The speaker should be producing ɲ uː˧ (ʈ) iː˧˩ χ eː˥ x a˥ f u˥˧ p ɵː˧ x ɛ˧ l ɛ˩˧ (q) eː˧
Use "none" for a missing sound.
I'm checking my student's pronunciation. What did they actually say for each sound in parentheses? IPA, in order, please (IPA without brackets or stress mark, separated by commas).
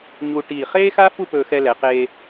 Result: ʈ, q